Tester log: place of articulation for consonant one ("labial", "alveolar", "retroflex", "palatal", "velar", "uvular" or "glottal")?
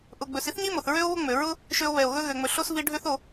glottal